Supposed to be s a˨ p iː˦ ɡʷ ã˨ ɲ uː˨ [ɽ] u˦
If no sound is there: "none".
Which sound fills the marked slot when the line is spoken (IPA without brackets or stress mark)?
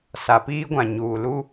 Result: l